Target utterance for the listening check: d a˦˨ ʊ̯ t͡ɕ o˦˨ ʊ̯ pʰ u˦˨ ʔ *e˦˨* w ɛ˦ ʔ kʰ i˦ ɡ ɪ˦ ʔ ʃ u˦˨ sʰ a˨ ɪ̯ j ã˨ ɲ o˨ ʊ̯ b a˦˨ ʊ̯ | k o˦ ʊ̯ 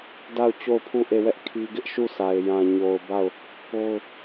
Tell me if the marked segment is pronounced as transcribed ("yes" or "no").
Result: yes